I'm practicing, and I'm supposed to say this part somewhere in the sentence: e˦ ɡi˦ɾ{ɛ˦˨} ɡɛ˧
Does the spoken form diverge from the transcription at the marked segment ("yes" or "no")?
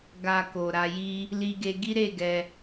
yes